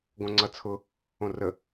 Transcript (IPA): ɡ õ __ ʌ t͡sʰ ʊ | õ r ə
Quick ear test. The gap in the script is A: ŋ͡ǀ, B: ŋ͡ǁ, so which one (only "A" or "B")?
A